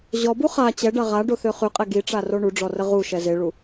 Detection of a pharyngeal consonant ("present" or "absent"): absent